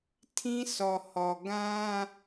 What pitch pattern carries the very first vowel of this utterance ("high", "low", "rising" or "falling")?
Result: high